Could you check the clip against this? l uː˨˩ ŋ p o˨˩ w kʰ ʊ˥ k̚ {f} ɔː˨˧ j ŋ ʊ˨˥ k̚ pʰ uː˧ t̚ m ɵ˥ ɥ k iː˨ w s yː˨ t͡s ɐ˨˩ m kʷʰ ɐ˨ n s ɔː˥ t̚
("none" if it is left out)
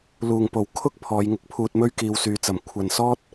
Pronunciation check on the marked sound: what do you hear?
pʰ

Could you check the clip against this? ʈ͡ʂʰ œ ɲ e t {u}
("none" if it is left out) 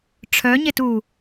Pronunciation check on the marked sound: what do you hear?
u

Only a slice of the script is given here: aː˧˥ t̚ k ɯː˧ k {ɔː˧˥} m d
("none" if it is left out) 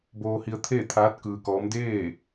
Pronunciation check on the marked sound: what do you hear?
ɔː˧˥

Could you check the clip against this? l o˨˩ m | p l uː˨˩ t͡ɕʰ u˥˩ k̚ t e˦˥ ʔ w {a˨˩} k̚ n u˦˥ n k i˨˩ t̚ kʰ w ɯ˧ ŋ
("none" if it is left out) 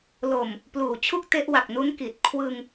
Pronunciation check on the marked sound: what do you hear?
a˨˩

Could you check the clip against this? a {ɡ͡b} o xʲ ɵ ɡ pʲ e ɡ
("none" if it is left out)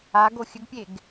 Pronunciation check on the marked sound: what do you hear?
ɡ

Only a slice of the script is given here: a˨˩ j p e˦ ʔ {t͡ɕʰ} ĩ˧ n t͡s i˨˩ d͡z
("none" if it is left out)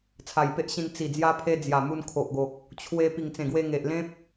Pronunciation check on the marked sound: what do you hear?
ɕ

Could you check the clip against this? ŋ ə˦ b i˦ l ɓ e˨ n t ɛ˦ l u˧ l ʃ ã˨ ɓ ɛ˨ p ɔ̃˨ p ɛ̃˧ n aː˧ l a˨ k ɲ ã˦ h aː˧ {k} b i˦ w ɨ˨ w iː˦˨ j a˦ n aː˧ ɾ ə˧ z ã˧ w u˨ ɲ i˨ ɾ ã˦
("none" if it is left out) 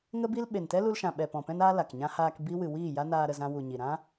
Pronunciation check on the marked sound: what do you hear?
k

